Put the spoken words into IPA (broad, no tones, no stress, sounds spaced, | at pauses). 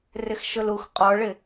r ɪ x ʃ ʊ l u x qʼ ɔ ɭ ɪ